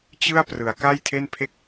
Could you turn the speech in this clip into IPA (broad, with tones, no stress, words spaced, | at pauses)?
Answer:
t͡ɕɯ˥˩a̯ prɯ˩˦a̯ka˥˩jtʰe˥˩npʰe˥˩k̚